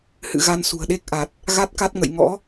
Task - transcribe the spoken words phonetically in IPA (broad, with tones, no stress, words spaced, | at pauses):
hɨ̰˧˨ɣa˧n sṳ˨˩ə̯ɗe˦˥k̚ʔa˨˩t̚ | ɣa˦˥t̚ka˦˥t̚ ŋə̰˧˨j ŋɔ̰˧˥